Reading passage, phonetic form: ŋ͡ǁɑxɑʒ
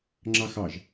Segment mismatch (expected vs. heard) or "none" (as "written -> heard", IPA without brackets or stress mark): none